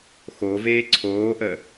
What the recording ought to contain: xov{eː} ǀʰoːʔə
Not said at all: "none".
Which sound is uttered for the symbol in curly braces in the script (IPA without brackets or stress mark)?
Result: eː